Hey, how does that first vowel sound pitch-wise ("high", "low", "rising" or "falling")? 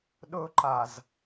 high